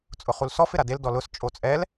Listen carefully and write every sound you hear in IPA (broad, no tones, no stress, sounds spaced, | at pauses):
t͡sʼ ʊ χ u l s ɔ f ɪ ɾ a d e l d ɔ l ʊ s t͡ʃʼ o t͡sʼ ɛ l